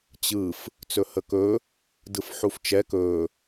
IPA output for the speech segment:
t͡ɕ ɯ f | t͡s ɵ h ə k ɵ | d ɯ f ħ u f t͡ʃ ɛ k ɵ

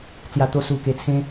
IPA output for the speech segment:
t͡s j a˧ t̪ o˦ s u˧ k e˧ t͡sʰ ẽ˦

